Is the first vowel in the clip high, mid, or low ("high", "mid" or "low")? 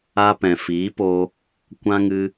low